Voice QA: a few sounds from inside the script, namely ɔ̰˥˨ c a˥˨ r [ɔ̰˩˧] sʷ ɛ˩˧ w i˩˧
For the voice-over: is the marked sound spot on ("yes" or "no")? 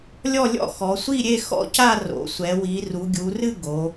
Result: no